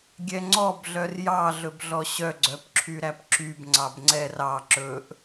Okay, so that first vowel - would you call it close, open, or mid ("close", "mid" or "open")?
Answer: mid